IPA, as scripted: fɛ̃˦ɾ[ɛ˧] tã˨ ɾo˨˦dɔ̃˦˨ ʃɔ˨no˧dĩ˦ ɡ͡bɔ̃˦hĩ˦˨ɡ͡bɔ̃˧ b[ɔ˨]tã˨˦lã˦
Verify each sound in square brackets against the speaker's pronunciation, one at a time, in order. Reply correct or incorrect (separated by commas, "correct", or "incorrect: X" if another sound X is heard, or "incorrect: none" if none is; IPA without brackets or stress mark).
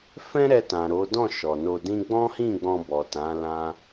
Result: correct, correct